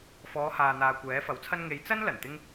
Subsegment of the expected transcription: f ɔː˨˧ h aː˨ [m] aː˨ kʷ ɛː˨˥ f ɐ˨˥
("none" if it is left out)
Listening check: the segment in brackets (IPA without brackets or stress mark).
n̪